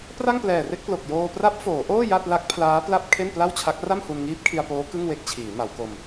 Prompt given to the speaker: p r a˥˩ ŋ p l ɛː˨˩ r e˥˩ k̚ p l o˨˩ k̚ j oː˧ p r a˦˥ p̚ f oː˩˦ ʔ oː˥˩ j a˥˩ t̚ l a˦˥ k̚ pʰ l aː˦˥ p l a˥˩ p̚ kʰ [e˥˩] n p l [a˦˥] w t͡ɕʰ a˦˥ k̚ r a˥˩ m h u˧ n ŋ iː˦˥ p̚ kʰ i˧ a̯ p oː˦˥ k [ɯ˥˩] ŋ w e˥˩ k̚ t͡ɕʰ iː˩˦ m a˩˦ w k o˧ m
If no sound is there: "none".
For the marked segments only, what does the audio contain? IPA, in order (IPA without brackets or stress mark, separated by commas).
e˥˩, a˥˩, ɯ˥˩